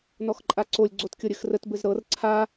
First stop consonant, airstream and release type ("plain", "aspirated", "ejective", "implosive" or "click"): click